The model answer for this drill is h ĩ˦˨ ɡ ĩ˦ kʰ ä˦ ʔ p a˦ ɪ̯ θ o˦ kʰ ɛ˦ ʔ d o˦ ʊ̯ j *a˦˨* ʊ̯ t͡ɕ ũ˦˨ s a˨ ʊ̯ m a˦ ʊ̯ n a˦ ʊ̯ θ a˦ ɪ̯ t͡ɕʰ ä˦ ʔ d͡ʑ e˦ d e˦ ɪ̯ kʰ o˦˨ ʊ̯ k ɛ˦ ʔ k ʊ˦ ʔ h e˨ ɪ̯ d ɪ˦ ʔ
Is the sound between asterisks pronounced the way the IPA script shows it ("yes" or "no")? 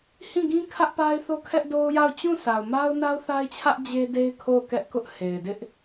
yes